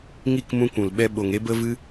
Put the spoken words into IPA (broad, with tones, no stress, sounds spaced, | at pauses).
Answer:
ŋ i˦˨ k m ũ˧ kʷ ũ˨ l ɓ ɛ˧ ɓ o˨ ŋ e˦ b ə˦ v ɨ˦